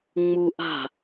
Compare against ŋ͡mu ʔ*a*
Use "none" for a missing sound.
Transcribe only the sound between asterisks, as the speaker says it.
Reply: a̤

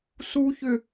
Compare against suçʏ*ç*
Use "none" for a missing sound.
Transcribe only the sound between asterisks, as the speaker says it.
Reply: none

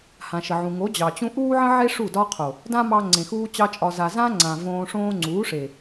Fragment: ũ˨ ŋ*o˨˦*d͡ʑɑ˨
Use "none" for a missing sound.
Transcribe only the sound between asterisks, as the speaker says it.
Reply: o˨˦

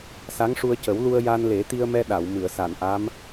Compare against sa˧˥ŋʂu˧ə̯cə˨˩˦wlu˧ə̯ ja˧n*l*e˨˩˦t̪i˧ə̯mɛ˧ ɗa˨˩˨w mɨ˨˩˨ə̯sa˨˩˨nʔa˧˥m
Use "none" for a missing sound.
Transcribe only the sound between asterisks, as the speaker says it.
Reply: l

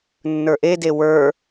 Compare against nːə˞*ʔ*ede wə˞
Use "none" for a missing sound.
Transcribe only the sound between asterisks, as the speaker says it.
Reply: ʔ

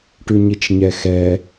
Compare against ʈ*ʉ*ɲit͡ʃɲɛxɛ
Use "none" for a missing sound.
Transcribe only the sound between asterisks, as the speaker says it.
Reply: ʉ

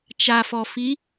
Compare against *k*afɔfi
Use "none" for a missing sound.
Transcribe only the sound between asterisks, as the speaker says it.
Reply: t͡ʃ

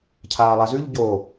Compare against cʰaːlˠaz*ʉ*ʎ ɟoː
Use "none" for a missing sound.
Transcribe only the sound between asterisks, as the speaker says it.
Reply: ʉ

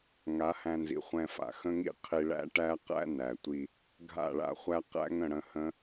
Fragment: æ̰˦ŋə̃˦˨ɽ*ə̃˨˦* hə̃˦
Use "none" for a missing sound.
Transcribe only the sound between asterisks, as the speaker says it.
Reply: ə̃˧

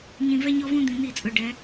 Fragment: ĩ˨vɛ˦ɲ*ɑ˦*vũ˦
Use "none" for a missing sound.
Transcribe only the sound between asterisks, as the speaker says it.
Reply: ɔ˦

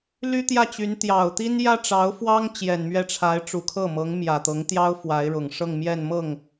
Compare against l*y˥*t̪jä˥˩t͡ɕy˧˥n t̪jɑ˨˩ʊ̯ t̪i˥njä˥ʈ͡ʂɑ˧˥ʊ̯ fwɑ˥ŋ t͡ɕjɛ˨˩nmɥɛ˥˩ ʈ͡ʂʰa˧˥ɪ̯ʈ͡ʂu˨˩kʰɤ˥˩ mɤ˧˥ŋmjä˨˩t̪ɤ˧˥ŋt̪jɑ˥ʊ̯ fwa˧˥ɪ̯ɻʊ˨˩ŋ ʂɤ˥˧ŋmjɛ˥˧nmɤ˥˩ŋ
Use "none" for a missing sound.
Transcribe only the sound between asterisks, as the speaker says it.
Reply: y˥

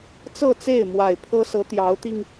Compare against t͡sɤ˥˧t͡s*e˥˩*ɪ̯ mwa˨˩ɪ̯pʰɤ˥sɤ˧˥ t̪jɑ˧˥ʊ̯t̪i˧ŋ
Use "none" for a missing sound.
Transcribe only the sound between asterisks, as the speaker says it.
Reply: e˥˩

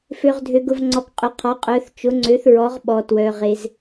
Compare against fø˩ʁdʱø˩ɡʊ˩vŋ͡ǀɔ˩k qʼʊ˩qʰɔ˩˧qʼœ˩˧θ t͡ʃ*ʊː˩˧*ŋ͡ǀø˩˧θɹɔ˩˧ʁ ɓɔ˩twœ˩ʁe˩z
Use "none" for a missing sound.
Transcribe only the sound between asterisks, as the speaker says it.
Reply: ʊ˩˧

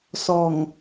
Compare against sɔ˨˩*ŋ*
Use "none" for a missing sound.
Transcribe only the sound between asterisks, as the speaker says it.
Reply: ŋ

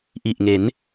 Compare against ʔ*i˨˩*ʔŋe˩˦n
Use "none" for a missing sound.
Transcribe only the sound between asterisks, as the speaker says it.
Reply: i˨˩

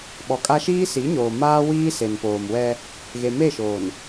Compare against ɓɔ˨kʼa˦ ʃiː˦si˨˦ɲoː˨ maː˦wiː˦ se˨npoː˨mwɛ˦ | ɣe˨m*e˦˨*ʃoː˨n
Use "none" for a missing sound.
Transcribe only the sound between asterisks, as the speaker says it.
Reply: e˦˨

